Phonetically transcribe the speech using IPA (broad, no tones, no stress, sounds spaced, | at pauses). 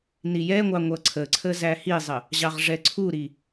n i j ɛ ŋʷ ɑ ŋʷ ʌ ǀʰ ə ǀʰ ə z æ h i zˤ ə | ʑ ɑ ʁ ʐ ɛ ǀʰ u ɾ i